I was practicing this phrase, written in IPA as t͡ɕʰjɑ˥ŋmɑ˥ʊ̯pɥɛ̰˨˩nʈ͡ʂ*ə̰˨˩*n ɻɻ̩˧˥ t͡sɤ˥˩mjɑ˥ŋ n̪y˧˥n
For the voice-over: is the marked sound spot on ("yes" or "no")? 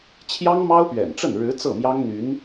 no